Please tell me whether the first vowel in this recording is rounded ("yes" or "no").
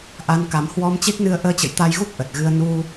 no